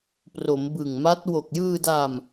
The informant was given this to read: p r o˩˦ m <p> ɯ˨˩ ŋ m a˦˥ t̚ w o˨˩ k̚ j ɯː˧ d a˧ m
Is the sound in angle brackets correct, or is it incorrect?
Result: incorrect